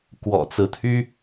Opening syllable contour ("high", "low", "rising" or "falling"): low